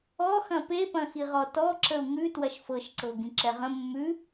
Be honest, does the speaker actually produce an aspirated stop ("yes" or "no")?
no